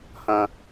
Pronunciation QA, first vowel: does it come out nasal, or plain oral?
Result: nasal